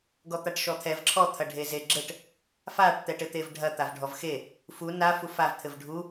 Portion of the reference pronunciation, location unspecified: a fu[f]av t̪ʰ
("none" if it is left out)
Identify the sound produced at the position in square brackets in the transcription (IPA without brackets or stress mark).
f